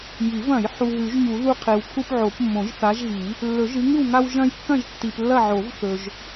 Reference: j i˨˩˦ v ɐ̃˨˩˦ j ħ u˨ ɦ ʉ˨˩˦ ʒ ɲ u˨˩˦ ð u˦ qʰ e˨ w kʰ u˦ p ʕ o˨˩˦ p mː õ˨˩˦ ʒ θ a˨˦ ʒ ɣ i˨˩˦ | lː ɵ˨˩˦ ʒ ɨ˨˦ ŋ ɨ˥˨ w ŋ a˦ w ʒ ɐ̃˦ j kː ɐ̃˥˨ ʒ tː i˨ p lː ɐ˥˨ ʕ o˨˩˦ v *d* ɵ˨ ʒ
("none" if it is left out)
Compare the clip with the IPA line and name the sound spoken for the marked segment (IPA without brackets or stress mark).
θ